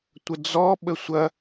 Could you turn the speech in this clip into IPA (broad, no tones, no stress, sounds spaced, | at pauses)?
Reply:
tʷ ə d͡z ɔ ɓ ə sʷ ɐ